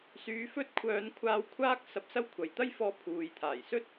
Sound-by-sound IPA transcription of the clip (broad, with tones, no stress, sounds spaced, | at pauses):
s yː˧ f ɵ˥ t̚ kʷʰ œː˧ n kʷʰ aː˧ w kʷʰ aː˥ k̚ s ɐ˧ p̚ s ɐ˥ w kʷʰ ɐ˨ j t̪ ɐ˥ j f ɔː˧ pʰ uː˨ j t̪ʰ aː˨˩ j s ɵ˥ t̚